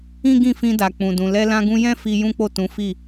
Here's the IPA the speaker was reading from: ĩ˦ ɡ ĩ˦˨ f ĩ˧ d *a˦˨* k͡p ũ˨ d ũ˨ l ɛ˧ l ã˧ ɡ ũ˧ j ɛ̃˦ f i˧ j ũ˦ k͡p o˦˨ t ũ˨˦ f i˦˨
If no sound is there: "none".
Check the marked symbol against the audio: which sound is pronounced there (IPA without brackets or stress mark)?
a˨